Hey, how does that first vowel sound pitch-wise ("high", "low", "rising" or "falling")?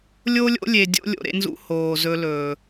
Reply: high